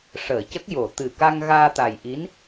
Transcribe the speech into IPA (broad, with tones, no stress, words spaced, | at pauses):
ʂəː˨˩˨cə˦˥k̚ jo˨˩˨ t̪ɨ˨˩ka˧ŋ ɣaː˧t̪a˨˩jʔi˧˥n